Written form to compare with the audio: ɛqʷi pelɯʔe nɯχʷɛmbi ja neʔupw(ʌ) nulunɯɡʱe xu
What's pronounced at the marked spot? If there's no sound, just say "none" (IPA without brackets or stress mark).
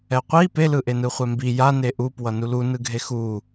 ʌ